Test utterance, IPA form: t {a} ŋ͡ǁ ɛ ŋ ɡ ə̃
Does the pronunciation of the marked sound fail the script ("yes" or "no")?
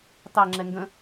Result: yes